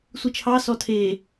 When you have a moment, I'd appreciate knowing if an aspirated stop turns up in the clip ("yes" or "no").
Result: yes